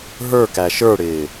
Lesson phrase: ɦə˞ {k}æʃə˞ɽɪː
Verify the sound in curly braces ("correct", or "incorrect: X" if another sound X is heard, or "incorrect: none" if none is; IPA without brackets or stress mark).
correct